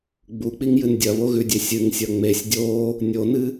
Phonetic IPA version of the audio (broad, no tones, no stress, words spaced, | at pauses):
ɡ͡buk͡piŋjɨn dʲɐβoɣʉdʲe sʲɨŋsʲɐ ŋ͡mesʲ dʲo | nʲonɨ